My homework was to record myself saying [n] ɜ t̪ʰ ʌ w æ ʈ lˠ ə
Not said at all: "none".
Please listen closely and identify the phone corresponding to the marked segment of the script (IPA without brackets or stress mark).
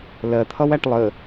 l